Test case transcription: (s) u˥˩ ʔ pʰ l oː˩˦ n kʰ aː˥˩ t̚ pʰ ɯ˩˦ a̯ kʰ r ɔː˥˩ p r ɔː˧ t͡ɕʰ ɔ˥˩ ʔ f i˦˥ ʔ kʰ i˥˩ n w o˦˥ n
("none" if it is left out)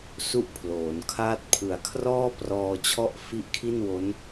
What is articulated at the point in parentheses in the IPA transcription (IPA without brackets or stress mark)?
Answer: s